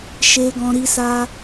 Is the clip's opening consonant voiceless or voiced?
voiceless